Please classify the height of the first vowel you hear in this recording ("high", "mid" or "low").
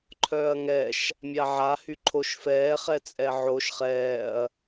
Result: mid